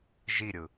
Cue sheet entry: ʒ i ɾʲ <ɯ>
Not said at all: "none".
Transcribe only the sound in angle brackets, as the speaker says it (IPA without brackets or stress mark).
ɯ